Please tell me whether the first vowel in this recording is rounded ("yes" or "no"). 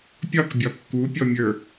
yes